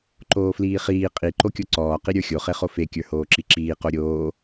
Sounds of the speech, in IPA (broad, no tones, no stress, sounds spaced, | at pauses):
ǃ oː f l iː χ iː qʼ i ǃ o kʲ o ǀ ɔː q i ɾʲ ə˞ xʲ o χ e χ o f e kʲ ə˞ h oː ǁ i ǁ iː q o ɾʲ oː